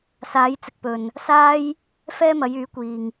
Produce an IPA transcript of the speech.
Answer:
s aː˨˧ j t͡s ɪ˨ k̚ p ɵ˨ n | s aː˥ j | f ɛː˥ m ɐ˨˧ j yː˨˥ kʷ iː˨ ŋ

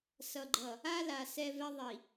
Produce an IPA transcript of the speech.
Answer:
s ʌ˨ ɡ͡ǃ ʌ˨ | a˦ l a˨ s ɛ˦ v ɛ˦ ðˤ i˨

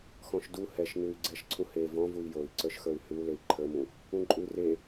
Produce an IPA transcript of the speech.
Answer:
x ɔ̃ ʃ d u h ɛ ʃ n ʉ y̯ ɡ͡ǀ ɛ ʃ ǀʰ ũ h e v ɔ̃ v u i̯ j o i̯ ǀ ə˞ ʃ x ə˞ y̯ h ʉ u̯ l e i̯ ǃʰ ə˞ m ũ | ũ ǃʼ ʉ r e

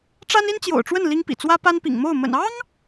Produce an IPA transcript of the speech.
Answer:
ʈ͡ʂ a˥ n i˥ n t͡ɕ j o̰˨˩ ʊ̯ ʈ͡ʂ w ə˥˩ n l i˥ ŋ p ḭ˨˩ t͡s w ä˥ p a˥ n p ḭ˨˩ ŋ m o˥˩ ʊ̯ m ə̰˨˩ n ɑ˥ ŋ

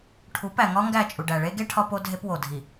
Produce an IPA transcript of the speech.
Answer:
ʈʰ u˨˦ p æ˨ ŋ ɒ˦ ŋ ɡ æ˦˨ t͡ʃʼ u˨ ɖ æ˨ ɭ e˦ ɡ e˦ ʈʰ ɒ˦ p o˦ dʱ e˦ p w o˨ dʱ i˨

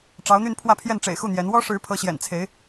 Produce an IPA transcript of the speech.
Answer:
ʈ͡ʂ ɑ˧˥ ʊ̯ n̪ y˥˧ n pʰ w ä˥˧ pʰ j ɛ˥˩ n ʈ͡ʂ ḛ˨˩ ɪ̯ x u˥˩ n̪ j ɛ˧˥ n w ɔ˥ ʂ ɻ̩˧˥ pʰ ɤ˧˥ ɕ j ɛ̰˨˩ n t͡sʰ e˧˥ ɪ̯

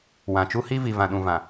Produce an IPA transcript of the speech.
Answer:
w ã˨ t͡ʃ u˦ h i˦ v i˨ v ã˨ ɗ ũ˨ v ã˨

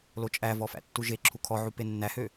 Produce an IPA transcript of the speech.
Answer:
l o t͡ʃʼ æ v ɔ f æ̰ tː u ʒ e ǁʰ u kʰ ɔ ʕ u p e nː æ h ø

